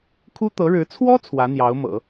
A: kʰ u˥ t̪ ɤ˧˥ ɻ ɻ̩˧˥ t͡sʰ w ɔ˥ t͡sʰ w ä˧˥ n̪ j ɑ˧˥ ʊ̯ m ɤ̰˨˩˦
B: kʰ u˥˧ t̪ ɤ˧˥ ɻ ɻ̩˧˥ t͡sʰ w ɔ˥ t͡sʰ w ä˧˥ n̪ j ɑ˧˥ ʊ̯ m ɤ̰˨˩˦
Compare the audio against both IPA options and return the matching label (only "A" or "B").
A